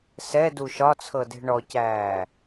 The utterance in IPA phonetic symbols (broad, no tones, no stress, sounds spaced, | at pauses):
s ɛ d u ʃ ɒ t͡sʰ ɤ d e̤ ɳ ɔ c æː